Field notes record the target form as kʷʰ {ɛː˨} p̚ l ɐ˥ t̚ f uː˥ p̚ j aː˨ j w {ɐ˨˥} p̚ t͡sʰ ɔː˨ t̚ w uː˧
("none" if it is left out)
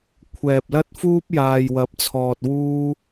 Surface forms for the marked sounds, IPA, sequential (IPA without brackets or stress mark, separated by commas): ɛː˨, ɐ˨˥